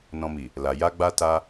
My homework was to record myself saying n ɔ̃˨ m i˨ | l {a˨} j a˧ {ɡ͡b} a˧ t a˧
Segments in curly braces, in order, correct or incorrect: correct, correct

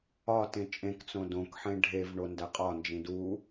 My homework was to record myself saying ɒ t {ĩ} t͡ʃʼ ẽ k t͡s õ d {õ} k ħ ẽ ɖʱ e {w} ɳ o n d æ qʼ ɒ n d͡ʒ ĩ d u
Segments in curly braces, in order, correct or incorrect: incorrect: ẽ, correct, incorrect: v

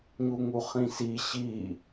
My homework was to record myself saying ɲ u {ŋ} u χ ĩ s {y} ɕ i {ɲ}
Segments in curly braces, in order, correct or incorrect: correct, incorrect: i, incorrect: none

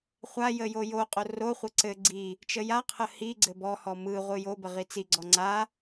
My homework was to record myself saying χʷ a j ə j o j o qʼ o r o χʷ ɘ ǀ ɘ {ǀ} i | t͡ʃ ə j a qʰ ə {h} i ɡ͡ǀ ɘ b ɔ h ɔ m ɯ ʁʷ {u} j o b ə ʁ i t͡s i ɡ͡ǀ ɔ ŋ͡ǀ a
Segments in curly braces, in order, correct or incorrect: incorrect: ɡ͡ǀ, correct, incorrect: ɯ

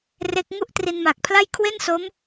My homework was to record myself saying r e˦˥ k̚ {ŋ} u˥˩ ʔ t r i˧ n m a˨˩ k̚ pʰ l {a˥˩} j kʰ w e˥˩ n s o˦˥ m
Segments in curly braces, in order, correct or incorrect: correct, correct

